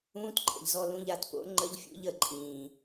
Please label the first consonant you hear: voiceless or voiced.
voiceless